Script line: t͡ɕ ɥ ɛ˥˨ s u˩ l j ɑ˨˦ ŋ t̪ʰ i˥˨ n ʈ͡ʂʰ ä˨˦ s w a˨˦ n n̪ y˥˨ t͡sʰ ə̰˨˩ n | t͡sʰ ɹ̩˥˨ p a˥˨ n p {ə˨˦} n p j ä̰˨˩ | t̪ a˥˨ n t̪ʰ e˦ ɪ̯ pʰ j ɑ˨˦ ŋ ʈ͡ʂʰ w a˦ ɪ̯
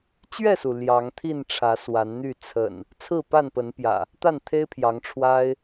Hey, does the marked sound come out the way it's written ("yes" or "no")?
yes